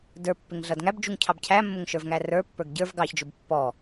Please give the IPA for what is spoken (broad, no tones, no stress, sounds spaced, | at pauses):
d ə˞ pː ɪ ŋ ɮ ʌ d ŋ æ b d͡ʒ u ŋ cʰ ɑ b cʰ æ mː ʊ ŋ ʃ ə˞ v ŋ æ r ə˞ pː ə˞ ɡ ɟ ə˞ v ɡ ɑ ç d͡ʒ ʊ b pː ɔ